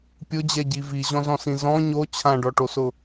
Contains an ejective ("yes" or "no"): no